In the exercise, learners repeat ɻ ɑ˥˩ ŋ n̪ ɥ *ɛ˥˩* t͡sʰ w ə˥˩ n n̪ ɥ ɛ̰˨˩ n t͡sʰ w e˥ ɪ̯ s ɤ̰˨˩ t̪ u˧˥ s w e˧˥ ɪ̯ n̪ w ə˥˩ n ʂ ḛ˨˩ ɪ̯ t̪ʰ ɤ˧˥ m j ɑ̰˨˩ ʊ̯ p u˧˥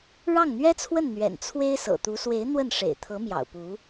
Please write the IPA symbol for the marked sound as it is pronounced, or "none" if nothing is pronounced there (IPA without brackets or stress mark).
ɛ˥